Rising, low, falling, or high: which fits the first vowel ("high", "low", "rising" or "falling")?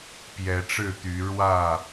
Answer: rising